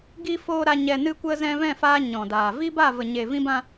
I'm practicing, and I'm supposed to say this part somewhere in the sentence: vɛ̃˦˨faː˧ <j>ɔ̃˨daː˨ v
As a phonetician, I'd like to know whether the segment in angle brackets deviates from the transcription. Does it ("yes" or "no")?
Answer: yes